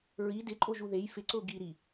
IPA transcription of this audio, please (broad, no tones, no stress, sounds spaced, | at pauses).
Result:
ɹ i d ɪ ǃʼ o ʒ u ð e j f ɪ ǀ ʊː ɡ i ɾ i